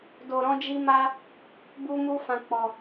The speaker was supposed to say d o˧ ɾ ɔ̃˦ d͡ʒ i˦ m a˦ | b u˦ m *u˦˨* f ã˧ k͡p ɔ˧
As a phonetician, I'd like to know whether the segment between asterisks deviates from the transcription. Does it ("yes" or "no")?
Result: yes